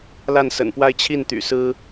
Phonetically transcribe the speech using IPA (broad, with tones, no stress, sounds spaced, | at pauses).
l a˥˩ n s ə̰˨˩ n p w a˥˧ ɪ̯ t͡ɕʰ i˥˩ n t̪ y̰˨˩ s ɹ̩˥